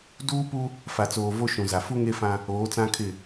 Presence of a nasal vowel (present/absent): present